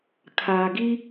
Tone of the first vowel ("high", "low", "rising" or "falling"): low